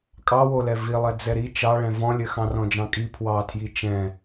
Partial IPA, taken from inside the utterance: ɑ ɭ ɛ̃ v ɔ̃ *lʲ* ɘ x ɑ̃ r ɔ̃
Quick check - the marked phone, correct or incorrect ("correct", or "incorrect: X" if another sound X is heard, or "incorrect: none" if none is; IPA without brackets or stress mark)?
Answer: correct